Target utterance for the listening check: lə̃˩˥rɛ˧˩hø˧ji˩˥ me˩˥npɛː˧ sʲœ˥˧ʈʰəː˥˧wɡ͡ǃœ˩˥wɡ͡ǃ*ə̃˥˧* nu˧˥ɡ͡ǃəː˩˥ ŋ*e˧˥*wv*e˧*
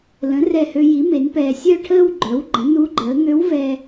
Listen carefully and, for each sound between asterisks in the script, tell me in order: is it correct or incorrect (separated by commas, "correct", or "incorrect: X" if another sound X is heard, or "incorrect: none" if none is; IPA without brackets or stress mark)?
incorrect: ə̃˩˥, incorrect: ø˧˥, incorrect: ɛ˧